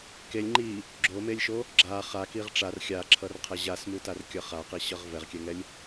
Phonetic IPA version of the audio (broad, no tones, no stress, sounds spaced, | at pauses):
k e lʲ ŋ͡ǃ i | ɡ͡ǁ o m e lʲ ʃ o | ɡ͡ǁ a χ a k i ʁ ʈ͡ʂ a r xʲ a ǁʰ ʌ r qʰ ɛ ʑ a s m u t a r kʲ ʌ χ a q i ɕ ʌ ʁ v ɛ ʁ kʲ ɛ ŋ ɛ lʲ